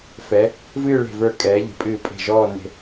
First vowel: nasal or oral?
oral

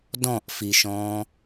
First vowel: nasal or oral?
nasal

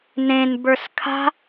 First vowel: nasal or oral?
nasal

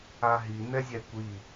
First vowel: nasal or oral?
oral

